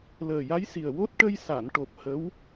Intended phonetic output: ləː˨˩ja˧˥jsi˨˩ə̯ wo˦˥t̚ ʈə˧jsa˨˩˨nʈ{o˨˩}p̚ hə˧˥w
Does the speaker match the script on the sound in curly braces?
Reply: yes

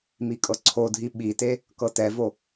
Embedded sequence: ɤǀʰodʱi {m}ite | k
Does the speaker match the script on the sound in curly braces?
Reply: no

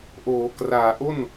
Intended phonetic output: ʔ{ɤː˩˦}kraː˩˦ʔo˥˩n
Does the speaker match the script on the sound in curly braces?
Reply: no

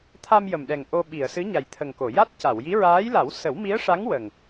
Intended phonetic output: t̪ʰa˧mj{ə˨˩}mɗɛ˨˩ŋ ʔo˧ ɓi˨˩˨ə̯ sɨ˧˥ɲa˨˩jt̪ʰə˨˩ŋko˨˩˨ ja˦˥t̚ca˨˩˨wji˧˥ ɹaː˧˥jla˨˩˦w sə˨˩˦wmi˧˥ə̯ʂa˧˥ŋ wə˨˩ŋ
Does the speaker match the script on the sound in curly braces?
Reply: yes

